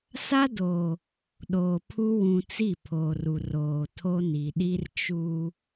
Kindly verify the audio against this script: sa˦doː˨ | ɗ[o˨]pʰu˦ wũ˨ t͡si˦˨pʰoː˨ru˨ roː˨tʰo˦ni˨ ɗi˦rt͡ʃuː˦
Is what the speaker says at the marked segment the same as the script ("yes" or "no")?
no